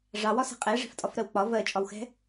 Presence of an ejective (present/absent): present